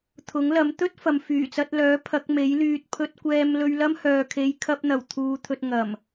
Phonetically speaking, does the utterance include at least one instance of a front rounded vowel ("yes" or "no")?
yes